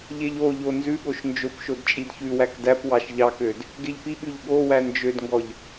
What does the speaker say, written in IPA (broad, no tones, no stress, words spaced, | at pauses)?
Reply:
ʎeʎoʎo nzʉɠoʃ nd͡ʒopʃod t͡ʃʼidçʉwæk dæpwɑʃ ʎɑkød | ɡeʎpiɠʉʎ ɠowæ nd͡ʒødŋɡɔʎ